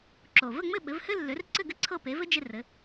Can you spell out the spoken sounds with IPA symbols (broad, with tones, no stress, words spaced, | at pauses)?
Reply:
ǁo˩ və˥˩ŋ͡mɘ˥˩ ɓɘ˩˥vhɘ˥ lːø˩˥rǀɘ˥˩ɡɘ˥ ǀʰɤ˥˩pe˩˥vɘ˥ d͡ʒe˧ rɘ˩˥